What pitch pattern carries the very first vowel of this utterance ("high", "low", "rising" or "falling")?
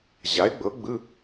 rising